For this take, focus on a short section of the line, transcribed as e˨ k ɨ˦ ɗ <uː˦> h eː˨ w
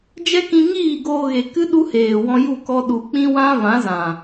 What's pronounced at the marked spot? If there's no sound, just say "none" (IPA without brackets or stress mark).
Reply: u˦